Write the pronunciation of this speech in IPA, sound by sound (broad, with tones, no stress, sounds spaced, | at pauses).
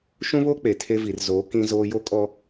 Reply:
ʃ ũ˦ β oː˦ k͡p e˨ tʰ e˦ v i˨ r z oː˨˦ k ĩ˦ z oː˦ j o˦ kʼ ɔ˦